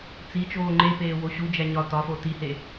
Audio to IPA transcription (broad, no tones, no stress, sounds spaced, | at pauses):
t͡s i t͡ʃ oː ŋ͡ǃ e p eː w o ɕ u d͡ʒ æ ɲ ɒ t ɒ f o t i h e